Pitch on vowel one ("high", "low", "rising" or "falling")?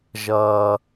high